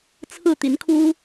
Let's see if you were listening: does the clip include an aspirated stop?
yes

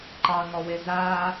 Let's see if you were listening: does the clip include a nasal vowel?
no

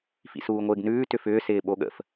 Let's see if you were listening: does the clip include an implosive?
yes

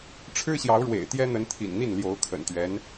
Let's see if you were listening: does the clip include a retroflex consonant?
yes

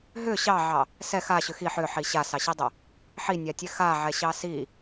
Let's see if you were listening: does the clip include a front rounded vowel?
yes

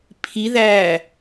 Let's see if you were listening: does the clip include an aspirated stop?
yes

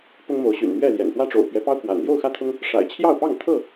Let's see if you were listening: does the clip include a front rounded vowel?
yes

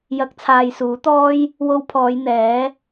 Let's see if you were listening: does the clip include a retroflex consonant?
no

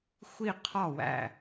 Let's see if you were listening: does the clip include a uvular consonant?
yes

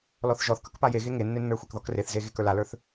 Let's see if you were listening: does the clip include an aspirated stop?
no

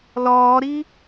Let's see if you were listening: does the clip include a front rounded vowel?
no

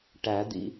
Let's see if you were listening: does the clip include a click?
no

